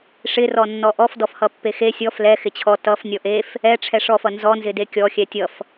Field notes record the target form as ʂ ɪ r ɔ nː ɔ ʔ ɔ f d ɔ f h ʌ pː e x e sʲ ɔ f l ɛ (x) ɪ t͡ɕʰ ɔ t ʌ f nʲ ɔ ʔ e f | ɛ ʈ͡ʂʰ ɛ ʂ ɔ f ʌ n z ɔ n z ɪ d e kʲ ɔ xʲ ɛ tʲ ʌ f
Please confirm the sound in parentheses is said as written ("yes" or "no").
yes